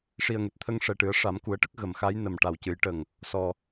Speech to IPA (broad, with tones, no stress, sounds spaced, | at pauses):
ʂ i˨˩ ə̯ ŋ e˨˩ t̚ t̪ʰ ə˧ ŋ ʂ ɛ˨˩ ʈ ɨ˨˩˦ ə̯ ʂ a˨˩˦ m k u˨˩˦ ə̯ ʈ ə˦˥ k̚ ɣ ə˨˩˨ m x a˧˥ j n ə˨˩ m ʈ a˨˩ w c ɨ˨˩˦ j ʈ ə˨˩ ŋ | s ɔ˨˩